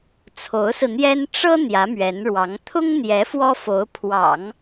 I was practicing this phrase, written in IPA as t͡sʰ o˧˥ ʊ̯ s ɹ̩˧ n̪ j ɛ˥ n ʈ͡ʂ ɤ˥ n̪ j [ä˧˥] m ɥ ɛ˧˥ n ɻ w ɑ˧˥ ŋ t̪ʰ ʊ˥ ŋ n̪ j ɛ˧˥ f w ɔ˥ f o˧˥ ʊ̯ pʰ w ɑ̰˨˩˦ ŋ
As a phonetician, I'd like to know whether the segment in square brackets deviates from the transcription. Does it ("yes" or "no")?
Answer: no